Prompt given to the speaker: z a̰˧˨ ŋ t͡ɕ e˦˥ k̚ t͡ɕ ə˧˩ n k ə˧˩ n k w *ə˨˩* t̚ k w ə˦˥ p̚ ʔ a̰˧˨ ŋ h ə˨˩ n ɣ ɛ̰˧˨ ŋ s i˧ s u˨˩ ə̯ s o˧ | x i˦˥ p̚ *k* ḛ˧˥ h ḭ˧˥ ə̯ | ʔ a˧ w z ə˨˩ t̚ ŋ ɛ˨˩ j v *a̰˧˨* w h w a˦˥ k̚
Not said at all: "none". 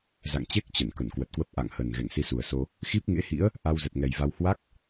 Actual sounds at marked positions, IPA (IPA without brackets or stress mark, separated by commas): ə˨˩, ŋ, a˧